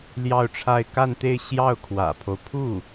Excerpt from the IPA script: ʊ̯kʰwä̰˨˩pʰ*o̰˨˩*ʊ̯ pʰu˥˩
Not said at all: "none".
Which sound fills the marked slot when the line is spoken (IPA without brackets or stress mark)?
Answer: o˦